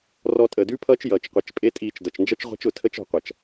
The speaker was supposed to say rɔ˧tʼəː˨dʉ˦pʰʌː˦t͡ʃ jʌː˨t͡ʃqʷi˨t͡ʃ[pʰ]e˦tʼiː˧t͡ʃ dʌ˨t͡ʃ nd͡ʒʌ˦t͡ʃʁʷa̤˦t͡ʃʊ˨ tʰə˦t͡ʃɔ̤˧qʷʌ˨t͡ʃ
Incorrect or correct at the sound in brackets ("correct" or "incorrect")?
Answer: incorrect